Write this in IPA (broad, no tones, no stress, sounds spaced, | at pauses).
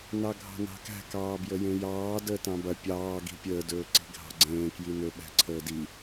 n ɑ ɡʱ ɑ̤ n ɑ̤ k æ̤ k ɑː b j ə j ẽ j ɑː d əː t ɑ̃ b ɐ pʲ ɑː ɡ i̤ pʲ əː d ɵː ǀ i̤ ɡʱ ɑ̤ ɡ͡ǀ ẽː k j i n ɵ ɓ æ̤ ǀʰ əː d i